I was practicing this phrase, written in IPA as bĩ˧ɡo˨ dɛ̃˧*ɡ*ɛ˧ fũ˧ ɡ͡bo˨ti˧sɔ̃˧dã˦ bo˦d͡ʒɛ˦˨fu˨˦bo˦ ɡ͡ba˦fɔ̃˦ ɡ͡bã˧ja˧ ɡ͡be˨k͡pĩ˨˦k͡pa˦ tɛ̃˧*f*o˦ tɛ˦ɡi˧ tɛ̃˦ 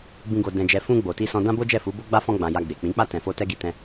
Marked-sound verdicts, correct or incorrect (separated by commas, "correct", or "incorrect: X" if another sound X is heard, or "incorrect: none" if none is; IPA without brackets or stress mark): incorrect: d͡ʒ, correct